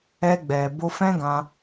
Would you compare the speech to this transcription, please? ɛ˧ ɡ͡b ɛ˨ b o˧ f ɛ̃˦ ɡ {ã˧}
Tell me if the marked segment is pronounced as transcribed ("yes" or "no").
yes